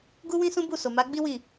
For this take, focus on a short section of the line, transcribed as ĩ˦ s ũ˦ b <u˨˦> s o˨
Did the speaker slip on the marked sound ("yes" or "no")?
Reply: yes